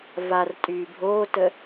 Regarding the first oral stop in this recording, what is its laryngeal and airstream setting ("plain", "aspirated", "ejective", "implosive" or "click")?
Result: ejective